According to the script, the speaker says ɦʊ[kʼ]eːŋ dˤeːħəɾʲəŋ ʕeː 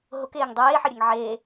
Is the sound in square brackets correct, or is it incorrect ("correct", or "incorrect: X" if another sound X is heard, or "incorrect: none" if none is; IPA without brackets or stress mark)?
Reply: incorrect: k